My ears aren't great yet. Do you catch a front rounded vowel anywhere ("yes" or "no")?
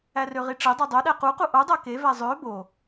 yes